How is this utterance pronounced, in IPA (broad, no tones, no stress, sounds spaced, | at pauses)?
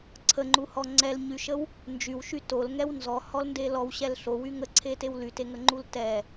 ǀʰ ə ŋ͡ǃ u h ɔ ŋ͡ǀ ɛ l ɲ y ʃ ə w | n d͡ʒ y w ʃ y t o l ŋ ɛ w n z ɔ h ɔ l n d e l ɔ w ɕ ɛ l ɬ o w y ŋ ə ǀʰ e t e w l y t e ŋ ə ŋ͡ǃ u l t ɛ